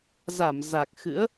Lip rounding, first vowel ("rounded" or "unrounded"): unrounded